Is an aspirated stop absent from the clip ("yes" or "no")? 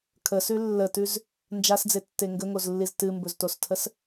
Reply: no